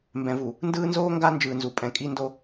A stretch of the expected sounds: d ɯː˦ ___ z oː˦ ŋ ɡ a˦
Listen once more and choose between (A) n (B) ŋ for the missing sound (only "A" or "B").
A